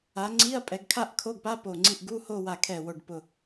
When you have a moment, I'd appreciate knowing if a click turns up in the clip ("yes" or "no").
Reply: yes